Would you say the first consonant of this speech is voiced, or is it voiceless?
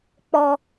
voiceless